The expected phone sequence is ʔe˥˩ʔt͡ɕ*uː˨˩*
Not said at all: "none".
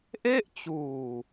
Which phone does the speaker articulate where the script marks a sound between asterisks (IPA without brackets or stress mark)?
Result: uː˨˩